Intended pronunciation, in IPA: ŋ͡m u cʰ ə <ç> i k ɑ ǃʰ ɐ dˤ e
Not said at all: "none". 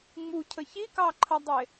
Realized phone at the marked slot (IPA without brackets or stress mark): ç